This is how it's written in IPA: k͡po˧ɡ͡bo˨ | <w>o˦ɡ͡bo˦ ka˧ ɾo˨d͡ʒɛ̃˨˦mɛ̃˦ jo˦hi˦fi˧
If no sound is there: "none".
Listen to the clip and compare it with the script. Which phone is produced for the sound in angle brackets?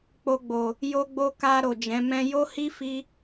j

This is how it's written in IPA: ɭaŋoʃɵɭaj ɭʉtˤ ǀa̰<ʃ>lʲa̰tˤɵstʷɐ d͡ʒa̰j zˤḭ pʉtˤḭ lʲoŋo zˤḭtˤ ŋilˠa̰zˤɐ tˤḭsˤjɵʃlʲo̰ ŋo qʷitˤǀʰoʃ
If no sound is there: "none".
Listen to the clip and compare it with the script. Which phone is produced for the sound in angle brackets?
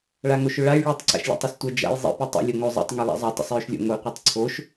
ʃ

